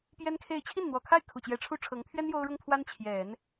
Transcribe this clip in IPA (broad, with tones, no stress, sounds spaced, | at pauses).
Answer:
p j ɛ˥ n kʰ e˥˧ ɪ̯ t͡ɕʰ i˥˩ n n̪ w ɔ˨˩ kʰ a˥˩ ɪ̯ kʰ u˨˩ t͡ɕ j ɛ˧˥ ʈ͡ʂʰ u˥ ʈ͡ʂʰ ɤ˧˥ ŋ t̪ʰ ɥ ɛ˥ n j o˥ ʊ̯ ɻ ʊ˥ ŋ t̪ʰ w a˥ n t͡ɕʰ j ɛ˨˩˦ n